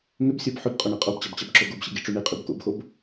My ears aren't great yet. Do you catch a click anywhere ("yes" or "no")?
yes